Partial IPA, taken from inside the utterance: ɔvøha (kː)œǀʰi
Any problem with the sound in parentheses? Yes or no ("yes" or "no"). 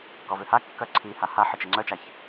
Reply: no